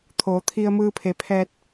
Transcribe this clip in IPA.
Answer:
t̪ʰ oː˩˧ t̪ʰ i˧ ə̯ m ɯː˧ pʰ e˩˧ pʰ ɛː˧ t̚

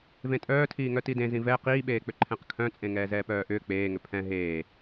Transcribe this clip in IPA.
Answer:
v ẽ tʼ œː tʰ iː ŋ œ t i d ẽ z ĩ v ɛ q iː ɓ eː k͡p ʏ ǃʰ ɛ̃ q kʰ œ̃ t͡sʼ ẽ ŋ ɛː z ɛː p œː ʔ ʏː k͡p eː ŋ ʏ pʰ ɛ̃ ɦ eː

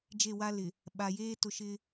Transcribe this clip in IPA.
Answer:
d͡ʒ e˦˨ w a˦ l ɪ˨ | ɓ a˨ j eː˦ t ʊ˦ ʃ ɪ˦

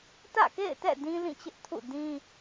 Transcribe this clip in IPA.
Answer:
t ä̰˦˨ k ḛ˦˨ ɪ̯ t ɛ̰˦˨ d ĩ˦ l ĩ˦˨ t͡ɕ ɪ˦ ʔ tʰ ṵ˦˨ d ĩ˦

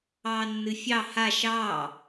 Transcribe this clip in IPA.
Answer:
ɑː nː ɨ fʲ ɑ h a ʃ ɑː

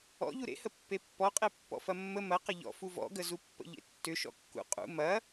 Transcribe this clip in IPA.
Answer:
ɔ̰ ʎ u ɾ ḛ h ə pː e pː ɔ qʼ e pː ɔ̰ f ɐ mː ə m ɐ q ə ʎ ɔ̰ f u v ɔ̰ ɡ ə z u pː ə̰ ʎ ḛ tː ʏ ʃ ɔ̰ kː ṵ qʼ ṵ m ɐ

